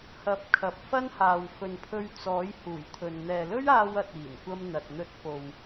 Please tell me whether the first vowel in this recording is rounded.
no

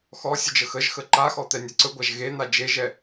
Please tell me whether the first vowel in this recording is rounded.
yes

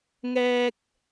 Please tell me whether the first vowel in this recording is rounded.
no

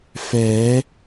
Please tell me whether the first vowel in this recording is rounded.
no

